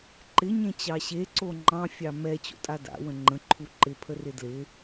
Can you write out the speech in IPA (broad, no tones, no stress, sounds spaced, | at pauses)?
ǃ ɪ ɲ ẽ t͡ɕ ɑ ɕ e ǀ o ŋ͡ǃ ɑ̃ fʲ ɑ m ɛ t͡ɕ o̰ tʼ a d a̰ w ə̃ ŋ͡ǃ ə̃ ǃʰ u ǃ ɪ pʰ ə r ɪ d l ɪ